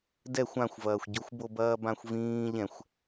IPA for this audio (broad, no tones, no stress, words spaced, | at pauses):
dɛxʷ ãxʷvɐːxʷɟoxʷ bobɐːbãxʷvĩː ʎɛ̃xʷ